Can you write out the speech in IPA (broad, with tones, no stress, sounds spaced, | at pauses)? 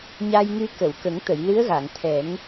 ɲ a˧ j ŋ ɨ˧ k ə˨˩˨ w k ə˨˩˦ ŋ t̪ ə˨˩˨ j l ɨ˧˥ ə̯ ɣ a˨˩˨ ŋ t̪ʰ ɛ˨˩˦ ŋ